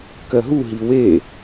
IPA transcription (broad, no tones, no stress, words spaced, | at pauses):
kɜɦuɦi we